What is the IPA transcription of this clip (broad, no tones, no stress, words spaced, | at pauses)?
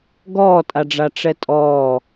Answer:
ɡɔːtʼaɖ͡ʐa ʈ͡ʂɛtʼɔː